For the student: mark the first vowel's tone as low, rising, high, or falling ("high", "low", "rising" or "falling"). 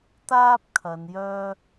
high